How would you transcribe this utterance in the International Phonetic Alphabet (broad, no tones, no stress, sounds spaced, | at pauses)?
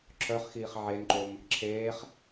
ǁʰ œ χ x iː χ ʕ e n ǃ o m | ǁʰ eː χ